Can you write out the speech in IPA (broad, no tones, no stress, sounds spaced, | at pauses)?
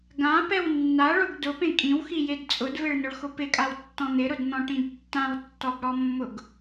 ɡ ã p ɛ w nː a ɭ o ɡ d ʊ p ẽ kʼ ĩ w x i j e d t͡sʼ ʊ d v e ɭ n ʊ ɭ x ʊ p ɪ kʼ a w tː ɔ̃ n̪ ɪ ɾ ʊ d n̪ ɔ̃ ʈ ĩ d tː ã w tː ɔ ɡ ɽ ɔ mː ʊ ɡ